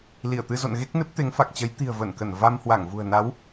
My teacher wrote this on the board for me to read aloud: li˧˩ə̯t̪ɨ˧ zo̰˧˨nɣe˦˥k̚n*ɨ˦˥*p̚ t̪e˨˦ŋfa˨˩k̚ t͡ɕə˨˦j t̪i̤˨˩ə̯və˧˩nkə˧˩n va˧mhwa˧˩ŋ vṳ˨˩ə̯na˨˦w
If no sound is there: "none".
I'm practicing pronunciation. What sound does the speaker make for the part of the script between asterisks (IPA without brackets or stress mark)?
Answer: ɨ˦˥